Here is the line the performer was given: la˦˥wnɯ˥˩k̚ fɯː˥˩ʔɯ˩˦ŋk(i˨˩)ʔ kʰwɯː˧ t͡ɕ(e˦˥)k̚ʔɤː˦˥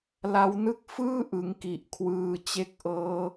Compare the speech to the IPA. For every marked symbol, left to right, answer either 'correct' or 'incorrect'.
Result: correct, correct

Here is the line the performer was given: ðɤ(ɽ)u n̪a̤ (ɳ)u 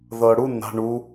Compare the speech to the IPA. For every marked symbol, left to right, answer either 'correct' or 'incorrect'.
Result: correct, correct

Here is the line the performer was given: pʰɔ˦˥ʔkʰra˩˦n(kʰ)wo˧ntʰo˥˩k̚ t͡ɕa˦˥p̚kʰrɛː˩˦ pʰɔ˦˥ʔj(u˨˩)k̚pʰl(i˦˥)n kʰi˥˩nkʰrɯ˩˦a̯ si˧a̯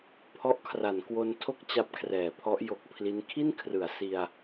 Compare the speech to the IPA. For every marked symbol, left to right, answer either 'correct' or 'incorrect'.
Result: incorrect: k, incorrect: o˨˩, correct

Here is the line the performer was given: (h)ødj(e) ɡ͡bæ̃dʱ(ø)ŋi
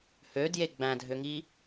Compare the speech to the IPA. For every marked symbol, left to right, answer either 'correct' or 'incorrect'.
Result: correct, correct, correct

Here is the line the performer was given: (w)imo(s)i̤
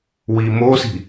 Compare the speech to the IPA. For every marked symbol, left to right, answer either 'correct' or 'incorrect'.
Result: correct, correct

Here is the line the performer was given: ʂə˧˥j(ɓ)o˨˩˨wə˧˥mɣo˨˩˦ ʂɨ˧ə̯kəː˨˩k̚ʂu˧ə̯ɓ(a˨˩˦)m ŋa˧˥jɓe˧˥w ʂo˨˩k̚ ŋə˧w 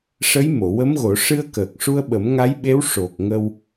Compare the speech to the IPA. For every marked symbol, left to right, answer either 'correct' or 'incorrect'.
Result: incorrect: m, incorrect: ə˨˩˦

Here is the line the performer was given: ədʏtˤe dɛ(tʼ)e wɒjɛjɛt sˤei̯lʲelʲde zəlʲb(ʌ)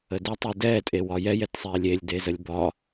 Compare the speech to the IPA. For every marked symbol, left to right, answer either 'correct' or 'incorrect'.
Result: correct, incorrect: ɒ

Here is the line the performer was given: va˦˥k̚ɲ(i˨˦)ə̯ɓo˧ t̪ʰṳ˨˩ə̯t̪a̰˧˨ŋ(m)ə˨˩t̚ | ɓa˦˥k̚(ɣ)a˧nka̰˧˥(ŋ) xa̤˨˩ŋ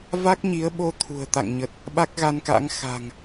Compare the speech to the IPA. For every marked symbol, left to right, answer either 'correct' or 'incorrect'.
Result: correct, incorrect: ɲ, correct, correct

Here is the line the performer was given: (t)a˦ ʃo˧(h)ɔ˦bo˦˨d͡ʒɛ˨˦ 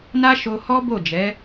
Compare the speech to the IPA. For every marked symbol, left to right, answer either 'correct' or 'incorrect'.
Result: incorrect: n, correct

